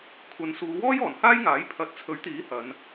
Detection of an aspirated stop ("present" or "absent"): present